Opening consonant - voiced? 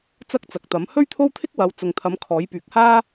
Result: no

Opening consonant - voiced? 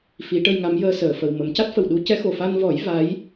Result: no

